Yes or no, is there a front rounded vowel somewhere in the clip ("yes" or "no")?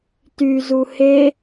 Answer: yes